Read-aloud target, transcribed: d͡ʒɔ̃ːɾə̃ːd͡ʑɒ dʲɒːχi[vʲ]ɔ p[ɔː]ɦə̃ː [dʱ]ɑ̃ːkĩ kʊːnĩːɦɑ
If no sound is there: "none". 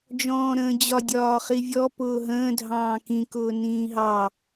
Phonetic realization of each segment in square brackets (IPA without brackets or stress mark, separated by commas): vʲ, ʊː, dʱ